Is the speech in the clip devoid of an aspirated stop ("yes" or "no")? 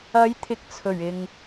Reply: no